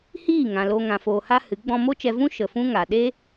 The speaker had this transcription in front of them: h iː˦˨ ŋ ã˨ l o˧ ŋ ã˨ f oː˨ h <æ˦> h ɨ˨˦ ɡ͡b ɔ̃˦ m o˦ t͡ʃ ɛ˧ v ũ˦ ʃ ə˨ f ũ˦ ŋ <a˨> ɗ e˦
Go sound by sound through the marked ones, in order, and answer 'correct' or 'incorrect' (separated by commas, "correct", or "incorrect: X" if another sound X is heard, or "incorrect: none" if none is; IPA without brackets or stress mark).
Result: incorrect: a˦, correct